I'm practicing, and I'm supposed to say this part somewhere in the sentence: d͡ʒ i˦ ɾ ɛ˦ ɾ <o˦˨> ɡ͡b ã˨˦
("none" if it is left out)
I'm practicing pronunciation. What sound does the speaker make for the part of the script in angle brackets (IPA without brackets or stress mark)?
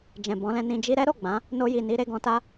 o˦˨